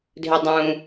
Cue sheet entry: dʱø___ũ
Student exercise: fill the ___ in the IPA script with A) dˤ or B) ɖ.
A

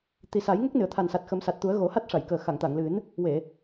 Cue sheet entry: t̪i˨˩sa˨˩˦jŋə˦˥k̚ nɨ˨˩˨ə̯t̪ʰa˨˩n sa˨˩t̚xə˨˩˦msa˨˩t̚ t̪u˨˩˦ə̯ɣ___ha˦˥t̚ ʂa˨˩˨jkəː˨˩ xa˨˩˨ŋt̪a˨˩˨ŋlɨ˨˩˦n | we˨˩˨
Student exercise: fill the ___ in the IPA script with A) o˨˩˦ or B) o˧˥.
A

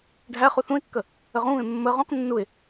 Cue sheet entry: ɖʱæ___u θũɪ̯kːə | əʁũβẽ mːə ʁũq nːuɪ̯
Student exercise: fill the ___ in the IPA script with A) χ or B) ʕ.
A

